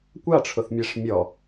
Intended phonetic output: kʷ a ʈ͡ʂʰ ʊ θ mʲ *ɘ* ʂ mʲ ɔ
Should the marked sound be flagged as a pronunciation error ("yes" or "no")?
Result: yes